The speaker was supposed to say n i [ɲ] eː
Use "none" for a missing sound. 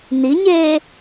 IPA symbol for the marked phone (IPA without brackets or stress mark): ɲ